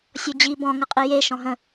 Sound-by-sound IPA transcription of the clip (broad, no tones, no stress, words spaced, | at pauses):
sʲɔd͡ʑi bɔ̃ ŋəqʼije ʃɔ̃ɦə̃